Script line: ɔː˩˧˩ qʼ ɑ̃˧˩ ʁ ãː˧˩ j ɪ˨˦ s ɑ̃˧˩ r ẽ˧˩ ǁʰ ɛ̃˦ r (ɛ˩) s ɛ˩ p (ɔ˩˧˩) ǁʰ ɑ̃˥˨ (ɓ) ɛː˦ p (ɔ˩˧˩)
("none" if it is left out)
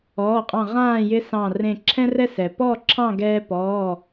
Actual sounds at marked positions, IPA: ɛ˦, ɔ˥˨, ɡ, ɔː˩˧˩

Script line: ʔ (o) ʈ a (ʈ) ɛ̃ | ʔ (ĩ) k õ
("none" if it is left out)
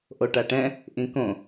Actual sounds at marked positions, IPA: o, ʈ, ĩ

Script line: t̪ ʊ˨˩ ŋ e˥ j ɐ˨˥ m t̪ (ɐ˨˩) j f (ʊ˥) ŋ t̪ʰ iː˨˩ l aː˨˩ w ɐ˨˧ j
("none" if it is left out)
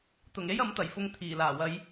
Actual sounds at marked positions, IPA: ɐ˨˩, ʊ˧

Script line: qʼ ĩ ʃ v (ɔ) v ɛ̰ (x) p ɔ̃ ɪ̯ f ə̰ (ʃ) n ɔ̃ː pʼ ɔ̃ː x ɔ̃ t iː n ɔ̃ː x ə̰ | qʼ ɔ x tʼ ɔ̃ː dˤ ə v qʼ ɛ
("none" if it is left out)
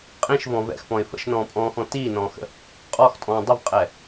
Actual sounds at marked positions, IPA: ɔ̃, x, ʃ

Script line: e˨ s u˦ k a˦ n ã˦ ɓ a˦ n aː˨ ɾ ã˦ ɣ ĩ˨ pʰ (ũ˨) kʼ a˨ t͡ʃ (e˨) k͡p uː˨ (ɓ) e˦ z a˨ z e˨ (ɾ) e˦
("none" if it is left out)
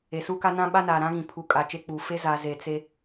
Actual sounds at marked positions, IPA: u˨, e˦, f, t͡s

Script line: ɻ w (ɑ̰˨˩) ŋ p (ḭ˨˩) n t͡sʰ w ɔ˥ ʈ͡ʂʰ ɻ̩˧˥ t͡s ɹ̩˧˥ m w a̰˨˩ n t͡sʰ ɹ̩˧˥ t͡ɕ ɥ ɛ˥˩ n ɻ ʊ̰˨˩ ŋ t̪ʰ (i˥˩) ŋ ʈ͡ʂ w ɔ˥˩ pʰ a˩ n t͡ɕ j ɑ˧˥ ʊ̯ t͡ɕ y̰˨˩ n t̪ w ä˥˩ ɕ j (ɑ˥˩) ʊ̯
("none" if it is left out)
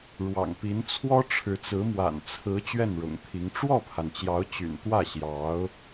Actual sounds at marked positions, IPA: ɑ̰˨˩, i˧˥, i˧˥, ɑ˧˥

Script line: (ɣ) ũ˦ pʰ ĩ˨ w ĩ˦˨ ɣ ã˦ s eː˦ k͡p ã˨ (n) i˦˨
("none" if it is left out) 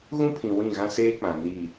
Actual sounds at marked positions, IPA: ɣ, n

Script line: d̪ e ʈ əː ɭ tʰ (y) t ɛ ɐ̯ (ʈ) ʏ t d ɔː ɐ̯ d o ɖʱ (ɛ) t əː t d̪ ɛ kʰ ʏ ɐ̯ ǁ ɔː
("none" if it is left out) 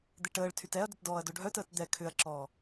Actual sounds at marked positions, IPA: y, d, œ

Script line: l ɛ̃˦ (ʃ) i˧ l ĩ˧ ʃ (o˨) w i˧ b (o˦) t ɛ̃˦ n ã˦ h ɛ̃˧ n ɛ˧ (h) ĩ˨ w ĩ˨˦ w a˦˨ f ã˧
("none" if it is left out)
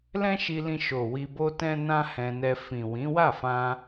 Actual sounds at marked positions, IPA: ʃ, o˨, o˦, f

